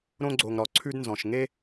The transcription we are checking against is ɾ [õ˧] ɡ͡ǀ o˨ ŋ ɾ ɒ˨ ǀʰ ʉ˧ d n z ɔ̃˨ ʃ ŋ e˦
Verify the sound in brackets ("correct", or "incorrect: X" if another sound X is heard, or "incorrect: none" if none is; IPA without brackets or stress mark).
correct